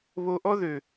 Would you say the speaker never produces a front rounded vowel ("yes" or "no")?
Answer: no